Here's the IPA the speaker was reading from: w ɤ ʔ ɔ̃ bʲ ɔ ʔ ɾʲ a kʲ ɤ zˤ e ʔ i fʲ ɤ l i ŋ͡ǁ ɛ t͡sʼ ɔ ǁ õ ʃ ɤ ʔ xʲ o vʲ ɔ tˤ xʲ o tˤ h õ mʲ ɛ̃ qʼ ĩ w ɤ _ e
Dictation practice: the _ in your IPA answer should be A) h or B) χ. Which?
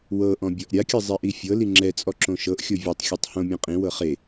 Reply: B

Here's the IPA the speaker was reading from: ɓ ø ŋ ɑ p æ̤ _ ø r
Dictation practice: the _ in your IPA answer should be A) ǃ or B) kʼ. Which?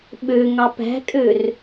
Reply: B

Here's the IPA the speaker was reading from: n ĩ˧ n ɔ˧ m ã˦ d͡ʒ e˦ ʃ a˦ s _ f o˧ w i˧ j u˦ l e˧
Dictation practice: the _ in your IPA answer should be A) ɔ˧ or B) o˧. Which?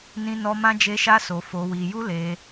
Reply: B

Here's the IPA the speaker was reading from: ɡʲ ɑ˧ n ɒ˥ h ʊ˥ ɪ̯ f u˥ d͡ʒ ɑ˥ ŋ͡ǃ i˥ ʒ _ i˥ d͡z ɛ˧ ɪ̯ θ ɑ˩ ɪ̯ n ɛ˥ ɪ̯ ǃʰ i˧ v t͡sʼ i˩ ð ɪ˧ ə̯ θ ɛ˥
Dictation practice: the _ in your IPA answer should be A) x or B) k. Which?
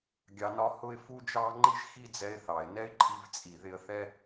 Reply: A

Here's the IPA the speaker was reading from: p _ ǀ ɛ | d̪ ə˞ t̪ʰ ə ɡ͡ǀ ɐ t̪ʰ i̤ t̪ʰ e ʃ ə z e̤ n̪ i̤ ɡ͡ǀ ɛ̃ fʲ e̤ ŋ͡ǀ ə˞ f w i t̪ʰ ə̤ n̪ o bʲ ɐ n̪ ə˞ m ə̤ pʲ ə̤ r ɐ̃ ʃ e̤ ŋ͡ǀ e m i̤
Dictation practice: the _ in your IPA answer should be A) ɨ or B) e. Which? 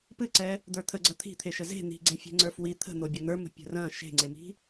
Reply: A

